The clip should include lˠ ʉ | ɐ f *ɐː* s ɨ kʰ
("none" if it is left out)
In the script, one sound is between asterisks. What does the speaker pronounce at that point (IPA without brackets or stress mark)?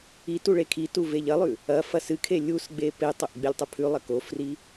ɐ